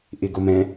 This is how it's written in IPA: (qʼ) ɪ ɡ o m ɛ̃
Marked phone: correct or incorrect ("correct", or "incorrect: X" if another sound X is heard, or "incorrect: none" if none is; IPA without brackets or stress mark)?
incorrect: ʔ